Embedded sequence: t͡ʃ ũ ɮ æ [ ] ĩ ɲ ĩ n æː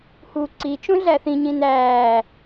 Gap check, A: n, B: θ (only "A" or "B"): B